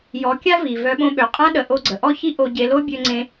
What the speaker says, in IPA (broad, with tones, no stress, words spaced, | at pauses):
jɔ˨˦kʲa˦vi˨ vœ˧ɓõ˧ɓø˨ qʼã˦ ɗə˨ʔo˧ɡ͡ǀə˨ ʔɔ˦çi˦ʔo˧ ɟe˧lo˦ bʲø˧ŋ͡ǀẽ˧